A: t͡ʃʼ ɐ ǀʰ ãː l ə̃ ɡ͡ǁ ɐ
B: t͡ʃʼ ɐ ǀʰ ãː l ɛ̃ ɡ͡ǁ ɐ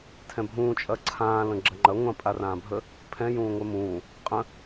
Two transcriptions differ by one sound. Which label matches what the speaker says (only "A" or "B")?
A